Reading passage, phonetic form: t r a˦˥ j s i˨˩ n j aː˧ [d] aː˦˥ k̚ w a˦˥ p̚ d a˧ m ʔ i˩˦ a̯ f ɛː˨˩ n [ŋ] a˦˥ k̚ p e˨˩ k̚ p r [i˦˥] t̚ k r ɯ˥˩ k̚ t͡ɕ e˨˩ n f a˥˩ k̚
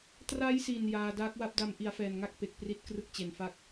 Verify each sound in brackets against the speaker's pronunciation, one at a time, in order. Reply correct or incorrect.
correct, correct, correct

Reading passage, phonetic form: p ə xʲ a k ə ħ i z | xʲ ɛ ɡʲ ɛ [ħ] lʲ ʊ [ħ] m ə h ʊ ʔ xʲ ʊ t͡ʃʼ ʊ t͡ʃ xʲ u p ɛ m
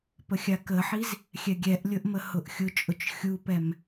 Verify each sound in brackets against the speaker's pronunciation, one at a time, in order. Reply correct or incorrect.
incorrect: ʔ, incorrect: ʔ

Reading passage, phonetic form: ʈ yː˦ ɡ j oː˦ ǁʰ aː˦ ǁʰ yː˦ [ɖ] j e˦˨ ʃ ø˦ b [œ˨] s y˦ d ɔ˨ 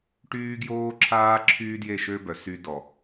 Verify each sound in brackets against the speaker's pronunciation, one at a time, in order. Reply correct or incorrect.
incorrect: d, correct

